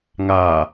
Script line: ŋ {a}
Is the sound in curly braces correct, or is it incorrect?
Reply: correct